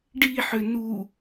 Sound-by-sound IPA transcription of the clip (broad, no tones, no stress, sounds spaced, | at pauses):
ɖ i ħ ʏ n u